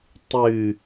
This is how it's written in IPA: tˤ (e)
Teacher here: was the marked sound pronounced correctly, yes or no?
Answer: no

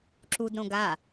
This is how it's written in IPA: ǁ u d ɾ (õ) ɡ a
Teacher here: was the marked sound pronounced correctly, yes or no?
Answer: yes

